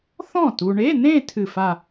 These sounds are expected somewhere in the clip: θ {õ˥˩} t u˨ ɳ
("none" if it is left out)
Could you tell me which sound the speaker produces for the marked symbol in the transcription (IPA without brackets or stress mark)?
ɔ̃˥˩